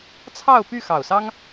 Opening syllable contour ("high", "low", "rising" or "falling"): falling